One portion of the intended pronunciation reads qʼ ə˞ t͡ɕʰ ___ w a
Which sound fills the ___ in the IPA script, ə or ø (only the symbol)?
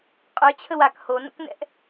ə